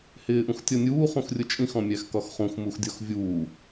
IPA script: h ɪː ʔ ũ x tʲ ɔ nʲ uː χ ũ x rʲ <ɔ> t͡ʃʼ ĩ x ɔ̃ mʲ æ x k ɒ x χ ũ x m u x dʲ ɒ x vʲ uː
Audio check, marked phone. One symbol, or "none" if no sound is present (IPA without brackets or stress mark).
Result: ʊ